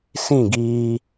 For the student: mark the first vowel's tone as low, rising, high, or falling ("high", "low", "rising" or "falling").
falling